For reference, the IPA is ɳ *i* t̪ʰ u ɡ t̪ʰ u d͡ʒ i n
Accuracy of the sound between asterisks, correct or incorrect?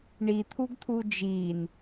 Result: correct